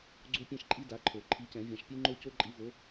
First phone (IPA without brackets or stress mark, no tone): ɡ͡ǀ